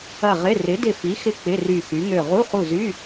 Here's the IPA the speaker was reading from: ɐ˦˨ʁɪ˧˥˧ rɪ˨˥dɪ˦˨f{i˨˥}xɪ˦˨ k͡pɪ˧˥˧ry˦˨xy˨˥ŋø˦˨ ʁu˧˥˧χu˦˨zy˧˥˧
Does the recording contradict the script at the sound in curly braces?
no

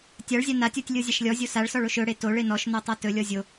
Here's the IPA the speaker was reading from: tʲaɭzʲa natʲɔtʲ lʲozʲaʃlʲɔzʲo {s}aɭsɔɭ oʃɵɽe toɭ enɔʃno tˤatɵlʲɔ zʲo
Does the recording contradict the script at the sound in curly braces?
no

